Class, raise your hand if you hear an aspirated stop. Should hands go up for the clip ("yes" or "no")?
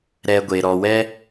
no